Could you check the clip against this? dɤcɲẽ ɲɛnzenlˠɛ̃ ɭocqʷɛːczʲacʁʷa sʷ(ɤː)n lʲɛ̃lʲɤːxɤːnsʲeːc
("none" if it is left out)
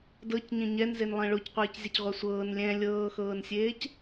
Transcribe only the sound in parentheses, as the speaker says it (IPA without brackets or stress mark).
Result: ɤː